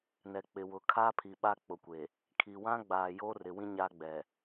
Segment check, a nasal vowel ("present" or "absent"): present